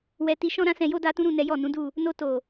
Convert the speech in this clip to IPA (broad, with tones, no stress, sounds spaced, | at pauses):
w ɛ˧ t i˧ ʃ ɔ̃˦ ɾ ã˦ s ɛ̃˧ j o˦ d a˦ t ũ˦ ɾ ũ˦˨ n ɛ˨˦ j ɔ˦˨ n ũ˨˦ d u˦˨ | n o˧ t o˨